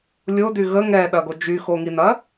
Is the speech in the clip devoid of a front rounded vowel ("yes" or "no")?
no